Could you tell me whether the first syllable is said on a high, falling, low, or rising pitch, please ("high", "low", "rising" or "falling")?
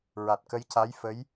low